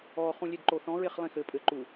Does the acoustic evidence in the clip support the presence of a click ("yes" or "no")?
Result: yes